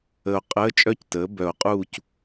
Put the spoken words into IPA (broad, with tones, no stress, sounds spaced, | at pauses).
ə˨ o̯ qʼ əː˧˥˧ t͡ʃʼ œ˦˥ c t əː˩˥ b œ˨˩˦ o̯ qʼ uː˦˨ c